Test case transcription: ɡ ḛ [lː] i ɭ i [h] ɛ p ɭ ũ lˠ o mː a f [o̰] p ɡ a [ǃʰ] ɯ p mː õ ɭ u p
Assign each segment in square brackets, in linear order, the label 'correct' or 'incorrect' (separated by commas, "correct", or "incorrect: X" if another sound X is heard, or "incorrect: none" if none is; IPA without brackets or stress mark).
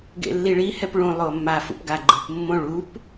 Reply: correct, correct, incorrect: ṵ, incorrect: ɡ͡ǃ